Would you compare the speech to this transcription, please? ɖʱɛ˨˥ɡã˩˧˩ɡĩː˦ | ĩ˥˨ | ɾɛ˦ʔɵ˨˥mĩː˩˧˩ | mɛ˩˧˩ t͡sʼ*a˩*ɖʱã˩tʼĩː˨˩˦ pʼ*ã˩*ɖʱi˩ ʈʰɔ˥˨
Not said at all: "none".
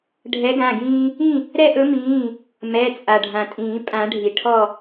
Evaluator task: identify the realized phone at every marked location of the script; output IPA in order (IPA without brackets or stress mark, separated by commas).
a˩, ã˨˩˦